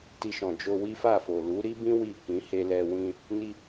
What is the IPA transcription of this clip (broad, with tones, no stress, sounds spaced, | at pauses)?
t i˧ ʃ ɔ̃˨ d͡ʒ o˧ w i˦ f a˦˨ f o˨ l u˨˦ ɾ i˦ b ĩ˦ w i˦˨ k ĩ˨˦ h e˧ l ɛ˧ w ĩ˧ | n i˦